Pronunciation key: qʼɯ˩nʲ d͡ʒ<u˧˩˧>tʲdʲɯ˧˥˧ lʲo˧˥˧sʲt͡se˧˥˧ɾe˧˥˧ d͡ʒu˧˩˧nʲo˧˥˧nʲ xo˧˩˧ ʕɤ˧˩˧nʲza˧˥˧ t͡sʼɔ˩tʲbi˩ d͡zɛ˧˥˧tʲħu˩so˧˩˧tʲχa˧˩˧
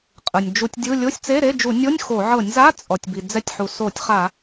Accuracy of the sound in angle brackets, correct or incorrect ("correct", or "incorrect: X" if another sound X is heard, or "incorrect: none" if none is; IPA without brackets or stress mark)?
correct